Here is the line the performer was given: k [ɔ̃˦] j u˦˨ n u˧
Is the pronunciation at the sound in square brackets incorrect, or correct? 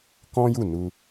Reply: correct